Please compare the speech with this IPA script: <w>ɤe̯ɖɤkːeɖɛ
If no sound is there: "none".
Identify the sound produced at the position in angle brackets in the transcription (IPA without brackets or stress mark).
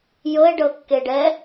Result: j